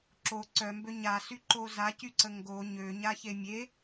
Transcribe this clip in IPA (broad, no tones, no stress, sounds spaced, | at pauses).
ǁ o ǀ œ m b ø ɲ a s y ǃ o z a c y ǀ ə ŋ ɡ o ɲ ø ɲ a ç e mʲ e